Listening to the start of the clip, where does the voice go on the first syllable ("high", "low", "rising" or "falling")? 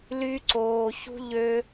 high